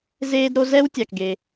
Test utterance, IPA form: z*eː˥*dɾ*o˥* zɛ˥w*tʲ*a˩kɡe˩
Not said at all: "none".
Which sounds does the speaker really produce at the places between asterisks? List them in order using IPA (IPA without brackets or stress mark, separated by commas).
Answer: eː˥, o˥, tʲ